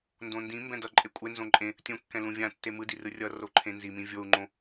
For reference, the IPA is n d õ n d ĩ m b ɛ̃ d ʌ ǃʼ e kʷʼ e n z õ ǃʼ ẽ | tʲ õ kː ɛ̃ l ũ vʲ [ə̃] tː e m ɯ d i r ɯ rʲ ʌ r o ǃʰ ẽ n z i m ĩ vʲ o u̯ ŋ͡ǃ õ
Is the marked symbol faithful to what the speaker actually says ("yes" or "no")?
no